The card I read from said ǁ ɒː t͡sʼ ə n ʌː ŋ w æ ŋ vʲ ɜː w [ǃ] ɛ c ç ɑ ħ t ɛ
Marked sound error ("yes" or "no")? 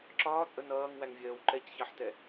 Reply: no